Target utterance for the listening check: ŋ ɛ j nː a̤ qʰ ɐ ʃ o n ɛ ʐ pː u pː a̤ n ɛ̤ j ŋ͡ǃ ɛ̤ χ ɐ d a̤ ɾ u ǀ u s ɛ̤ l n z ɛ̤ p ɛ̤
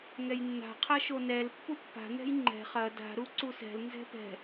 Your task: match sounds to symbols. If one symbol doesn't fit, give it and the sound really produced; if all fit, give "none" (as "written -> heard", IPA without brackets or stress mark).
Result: ʐ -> l